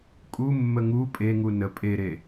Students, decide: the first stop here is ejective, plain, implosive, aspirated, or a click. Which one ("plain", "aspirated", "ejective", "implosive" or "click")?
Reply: ejective